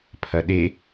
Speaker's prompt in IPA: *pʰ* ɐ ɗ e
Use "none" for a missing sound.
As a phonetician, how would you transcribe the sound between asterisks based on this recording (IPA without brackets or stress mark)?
pʰ